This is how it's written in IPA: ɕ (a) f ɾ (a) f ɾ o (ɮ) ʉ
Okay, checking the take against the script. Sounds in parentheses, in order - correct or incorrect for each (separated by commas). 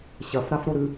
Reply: incorrect, correct, incorrect